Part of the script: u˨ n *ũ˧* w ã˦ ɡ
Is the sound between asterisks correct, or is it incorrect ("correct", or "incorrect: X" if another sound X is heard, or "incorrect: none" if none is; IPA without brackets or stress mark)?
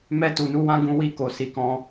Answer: incorrect: u˧